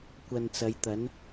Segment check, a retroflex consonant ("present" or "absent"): absent